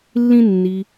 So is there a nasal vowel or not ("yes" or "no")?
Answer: yes